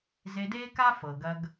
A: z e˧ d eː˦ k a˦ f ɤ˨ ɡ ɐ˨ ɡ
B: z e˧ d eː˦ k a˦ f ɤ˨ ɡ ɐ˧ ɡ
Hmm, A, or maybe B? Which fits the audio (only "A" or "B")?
B